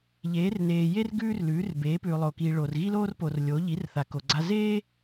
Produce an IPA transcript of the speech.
ʎ eː˨˥ r n eː˨ j e˥ r ɡ ʉː˥ r l ʉː˨˥ r b eː˨˥ p ʉː˨ lˠ oː˨ k iː˨ ɭ oː˨ r ɣ i˥ l oː˥ r p o˨ r lʲ o˨˥ ʎ i˨˥ r θ a˨ k o˨ ɡ͡ǀ a˥ z eː˥

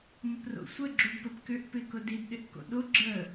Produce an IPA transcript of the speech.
m ə p r o̰ sʷ ə ɡ͡ǁ u d p ə p k ʏ ʔ p ɪ k ʊ d i d ɗ ɪ ʔ k o̰ ɗ o ɡ͡ǁ ə

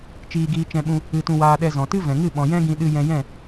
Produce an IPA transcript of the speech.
t͡ʃ iː˧ ɡ iː˧ t͡ʃ ɛ̃˧ ɓ ũ˧ | ɨ˧ t ũ˧ w aː˧ ɗ ɛ˧ z ɔ̃˨ t ɨ˦ v ɛ̃˨ ŋ ɨ˦˨ ɓ ɔ̃˨ j ɛ̃˦ ɡ ĩ˧ ɗ ɨ˧ j ɛ̃˧ j ɛ̃˦˨

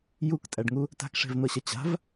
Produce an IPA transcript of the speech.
j u k tʼ æ ɖ ŋ u | t a̤ k ʂ e̤ v n̪ ɤ ɕ ɐ t͡ɕ a̤ v

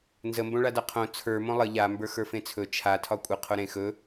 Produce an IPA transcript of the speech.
n z ə m b õ ɭ a d a qʰ õ t͡sʰ ə˞ m õ lˠ ə ʎ a m b ə˞ x ə˞ f ẽ t͡sʰ ɵ t͡ʃʰ a tʰ ɒ kʷʼ ə qʰ o ɾ ẽ x ɵ

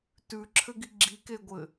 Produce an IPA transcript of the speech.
t ʉ ǁʰ ɘ ɡ i ɡ͡ǁ i k e ɡʷ ɘ

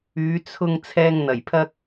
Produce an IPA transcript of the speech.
yː˨˧ t͡sʰ ʊ˧ ŋ t͡sʰ ɛː˧ ŋ n̪ ɐ˨˩ j pʰ ɐ˥ k̚

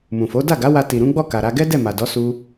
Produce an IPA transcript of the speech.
m ũ˨ f o˨˦ d a˦˨ ɡ a˨˦ w a˧ t i˨ ɾ ũ˨˦ ɡ͡b ɔ˦˨ k a˨ ɾ a˧ ɡ ɛ˦ d ɛ˦˨ m a˨ d ɔ˨˦ s u˦

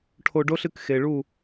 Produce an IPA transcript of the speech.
ʈʰ o˧ ɖ o˦ ɬ ɨ˦ k x e˨ ɭ u˦˨

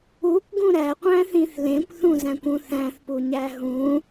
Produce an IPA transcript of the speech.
u kʷ ɡ ũ ɾ æ qʷ æ̃ θ ĩ θ l ẽ kʷ θ ũ z æ̃ kʷ ũ θ æ̃ θ p u ɲ æ ɦ ũ

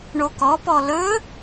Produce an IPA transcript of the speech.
ɳ o k ɔ p ɔ l ɵ

